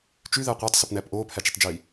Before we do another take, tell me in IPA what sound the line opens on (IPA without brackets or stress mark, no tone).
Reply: t͡ʃ